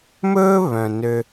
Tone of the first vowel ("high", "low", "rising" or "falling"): high